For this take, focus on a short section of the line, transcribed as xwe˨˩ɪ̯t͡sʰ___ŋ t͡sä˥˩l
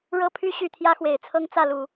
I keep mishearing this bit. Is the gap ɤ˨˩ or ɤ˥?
ɤ˥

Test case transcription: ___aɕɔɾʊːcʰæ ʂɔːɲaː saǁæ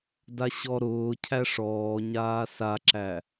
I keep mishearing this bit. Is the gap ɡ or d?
d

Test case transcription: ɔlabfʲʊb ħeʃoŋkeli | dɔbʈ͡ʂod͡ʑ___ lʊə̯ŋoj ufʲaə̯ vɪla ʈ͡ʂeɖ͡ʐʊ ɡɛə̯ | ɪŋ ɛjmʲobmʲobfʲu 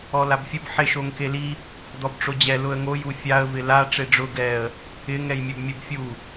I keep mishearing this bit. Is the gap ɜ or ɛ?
ɛ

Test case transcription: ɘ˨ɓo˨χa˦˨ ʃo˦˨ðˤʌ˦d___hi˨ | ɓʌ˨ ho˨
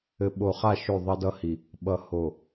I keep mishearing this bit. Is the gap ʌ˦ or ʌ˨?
ʌ˦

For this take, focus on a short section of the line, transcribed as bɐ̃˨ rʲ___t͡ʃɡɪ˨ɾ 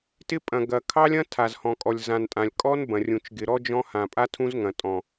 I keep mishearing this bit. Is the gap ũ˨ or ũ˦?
ũ˨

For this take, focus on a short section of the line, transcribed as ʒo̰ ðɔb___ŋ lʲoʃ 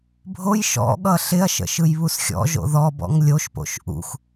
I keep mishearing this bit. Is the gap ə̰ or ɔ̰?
ɔ̰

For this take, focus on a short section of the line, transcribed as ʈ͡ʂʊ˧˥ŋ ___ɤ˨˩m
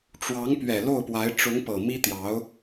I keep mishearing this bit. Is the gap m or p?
p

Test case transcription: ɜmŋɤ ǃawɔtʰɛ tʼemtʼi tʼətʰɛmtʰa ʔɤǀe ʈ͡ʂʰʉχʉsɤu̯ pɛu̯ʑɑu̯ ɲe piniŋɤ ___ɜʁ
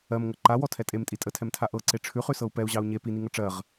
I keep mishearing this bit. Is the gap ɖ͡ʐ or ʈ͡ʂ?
ʈ͡ʂ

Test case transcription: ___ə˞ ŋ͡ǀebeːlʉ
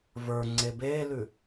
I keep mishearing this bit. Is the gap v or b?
v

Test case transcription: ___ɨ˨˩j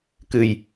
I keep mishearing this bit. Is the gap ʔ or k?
k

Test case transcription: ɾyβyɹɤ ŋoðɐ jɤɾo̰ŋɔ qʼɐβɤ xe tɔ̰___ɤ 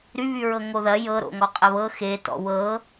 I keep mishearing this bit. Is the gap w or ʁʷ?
w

